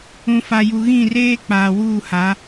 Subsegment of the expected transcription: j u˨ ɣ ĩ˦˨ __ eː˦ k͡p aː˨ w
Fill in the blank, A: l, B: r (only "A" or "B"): B